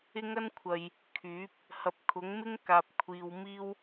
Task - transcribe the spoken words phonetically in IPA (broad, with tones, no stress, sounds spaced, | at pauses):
ɪ˥ ŋ ɐ˥ n kʷʰ ɐ˨ j | kʰ yː˨˥ p̚ | h ɐ˨˥ p̚ kʰ ʊ˨˥ ŋ m ɪ˥ ŋ k aː˨ p̚ kʷʰ iː˨ w m iː˥ w